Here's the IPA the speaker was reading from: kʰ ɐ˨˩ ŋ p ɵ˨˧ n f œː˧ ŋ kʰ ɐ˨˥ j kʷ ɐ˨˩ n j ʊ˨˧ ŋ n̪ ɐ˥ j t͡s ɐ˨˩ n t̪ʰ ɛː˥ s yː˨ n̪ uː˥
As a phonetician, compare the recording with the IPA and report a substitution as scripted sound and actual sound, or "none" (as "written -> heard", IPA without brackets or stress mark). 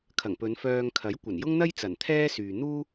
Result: ʊ˨˧ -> ʊ˥